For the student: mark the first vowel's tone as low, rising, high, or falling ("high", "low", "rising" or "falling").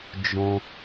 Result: high